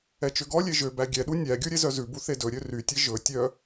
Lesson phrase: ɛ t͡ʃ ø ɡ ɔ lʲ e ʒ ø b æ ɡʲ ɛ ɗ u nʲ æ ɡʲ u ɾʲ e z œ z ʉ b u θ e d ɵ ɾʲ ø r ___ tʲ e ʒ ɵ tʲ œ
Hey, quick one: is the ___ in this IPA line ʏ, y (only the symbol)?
y